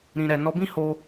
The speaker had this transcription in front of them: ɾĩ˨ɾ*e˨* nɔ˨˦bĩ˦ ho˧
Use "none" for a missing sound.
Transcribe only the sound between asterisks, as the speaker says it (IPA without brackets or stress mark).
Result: ɛ˨